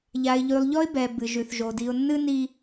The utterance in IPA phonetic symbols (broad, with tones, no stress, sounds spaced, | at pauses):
ʎ a˨ ɪ̯ ʎ ʉ˨ lˠ ʎ ɔ˦ ɪ̯ b ɛ˨ b ɨ˨ ʒ ʉ˨ θ ʒ o˨ d i˨ ʊ̯ nː ɨ˦ n i˦